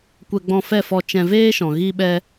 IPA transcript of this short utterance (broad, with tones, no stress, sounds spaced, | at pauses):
kʷ ɛ˧ ɡ͡b ɔ̃˧ f ɛ˦˨ f ɔ˧ t͡ʃ ɛ̃˧ v eː˦ ʃ ɔ̃˨ ɣ i˦ ɓ ɛ˦